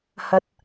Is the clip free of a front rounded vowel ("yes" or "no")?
yes